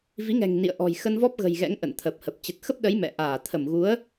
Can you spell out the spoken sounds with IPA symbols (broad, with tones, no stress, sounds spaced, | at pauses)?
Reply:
v i˨˦ ŋ ɛ̤˨˩ ŋ n ḭ˧˨ ə̯ ʔ ɔ̤˨˩ j x ə˧ n v ɔ˦˥ p̚ ɣ ə̤˨˩ j ɣ ɛ̰˧˥ ŋ ʔ ə̰˧˨ n t̪ʰ ə˨˩ p̚ h ə˨˩ p̚ t͡ɕ ə˨˩ t̚ x ə˦˥ p̚ ɗ ə˨˦ j m ɛ̰˧˨ ʔ aː˧˩ t̪ʰ ə˧˩ m ɣ u˨˦ ə̯